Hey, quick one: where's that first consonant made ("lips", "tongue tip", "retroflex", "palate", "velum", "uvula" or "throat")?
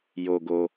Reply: palate